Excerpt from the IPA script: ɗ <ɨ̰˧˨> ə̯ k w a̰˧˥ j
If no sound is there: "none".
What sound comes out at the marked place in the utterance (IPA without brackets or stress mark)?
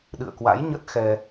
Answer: ɨ̰˧˨